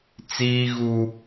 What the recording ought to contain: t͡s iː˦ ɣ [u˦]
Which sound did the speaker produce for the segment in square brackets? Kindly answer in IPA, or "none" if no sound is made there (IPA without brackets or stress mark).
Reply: uː˦